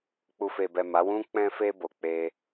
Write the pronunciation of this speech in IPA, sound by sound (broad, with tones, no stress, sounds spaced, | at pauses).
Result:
k͡p u˨ f e˨ b ɛ˨ m a˨˦ w ũ˦ k͡p ɛ̃˧ f e˧ b o˨ k͡p e˧